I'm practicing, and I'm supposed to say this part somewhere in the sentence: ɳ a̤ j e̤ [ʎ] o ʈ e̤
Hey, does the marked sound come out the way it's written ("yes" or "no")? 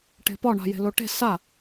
no